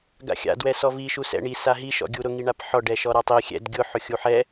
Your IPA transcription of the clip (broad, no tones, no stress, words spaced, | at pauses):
ɡa̰xʲa̰ dwɛsɔvi ʃusɛ̰ɳi saɦi ʃɔ̰ɡʲuɾʊ ŋiɳapħɔ ɖɛʃɔɾatˤi xʲɛ̰d ɡʲʊ ħʊxʲuħɛ